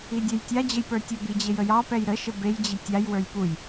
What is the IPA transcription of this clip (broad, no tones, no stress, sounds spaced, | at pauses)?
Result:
i dʲ ɛ j tʲ a d͡ʑ ə j p ə˞ tʲ ə b i d͡ʑ e j ə j ɑ p ɛ j ɾ ə ʃ ə b e j d͡ʑ i tʲ a j w ə˞ j p u j